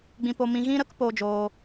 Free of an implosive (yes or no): yes